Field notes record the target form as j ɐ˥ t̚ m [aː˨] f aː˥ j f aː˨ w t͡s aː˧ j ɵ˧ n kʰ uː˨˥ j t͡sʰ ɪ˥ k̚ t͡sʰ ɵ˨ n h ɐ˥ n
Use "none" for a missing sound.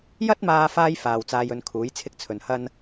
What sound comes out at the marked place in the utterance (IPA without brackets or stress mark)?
aː˧